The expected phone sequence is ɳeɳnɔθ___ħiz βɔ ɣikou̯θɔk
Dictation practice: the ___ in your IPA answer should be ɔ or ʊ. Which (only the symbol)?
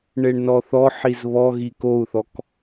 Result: ɔ